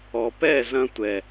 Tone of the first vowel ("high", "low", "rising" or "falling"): low